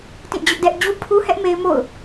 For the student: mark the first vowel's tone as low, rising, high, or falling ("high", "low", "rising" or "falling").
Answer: falling